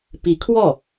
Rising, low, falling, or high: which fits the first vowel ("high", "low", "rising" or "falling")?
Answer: rising